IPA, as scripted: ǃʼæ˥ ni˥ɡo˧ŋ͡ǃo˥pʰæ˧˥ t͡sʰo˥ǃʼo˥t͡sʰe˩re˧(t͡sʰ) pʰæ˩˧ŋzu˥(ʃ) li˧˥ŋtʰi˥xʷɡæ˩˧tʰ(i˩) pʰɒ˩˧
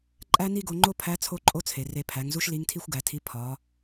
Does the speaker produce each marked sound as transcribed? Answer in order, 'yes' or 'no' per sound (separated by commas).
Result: no, yes, no